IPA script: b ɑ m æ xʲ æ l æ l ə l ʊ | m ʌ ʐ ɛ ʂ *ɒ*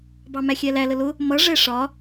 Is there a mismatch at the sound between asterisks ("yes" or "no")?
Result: no